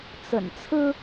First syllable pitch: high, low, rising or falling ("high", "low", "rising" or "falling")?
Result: low